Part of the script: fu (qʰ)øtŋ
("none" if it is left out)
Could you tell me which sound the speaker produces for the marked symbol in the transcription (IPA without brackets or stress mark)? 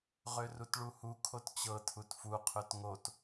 qʰ